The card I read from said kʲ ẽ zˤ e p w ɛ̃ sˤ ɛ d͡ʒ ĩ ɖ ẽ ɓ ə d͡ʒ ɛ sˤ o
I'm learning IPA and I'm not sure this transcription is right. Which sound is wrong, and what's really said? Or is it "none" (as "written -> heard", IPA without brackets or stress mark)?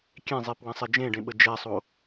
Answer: ĩ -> ẽ